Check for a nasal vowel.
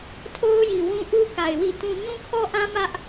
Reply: present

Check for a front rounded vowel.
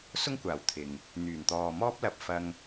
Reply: present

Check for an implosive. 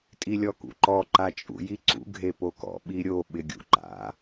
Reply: present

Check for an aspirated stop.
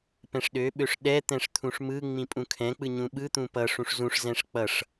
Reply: present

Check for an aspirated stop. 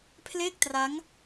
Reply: present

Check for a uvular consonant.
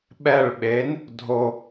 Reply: absent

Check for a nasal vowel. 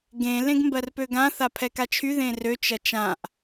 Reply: present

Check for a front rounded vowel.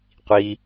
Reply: absent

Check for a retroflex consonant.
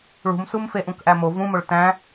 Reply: present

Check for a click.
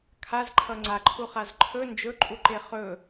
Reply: present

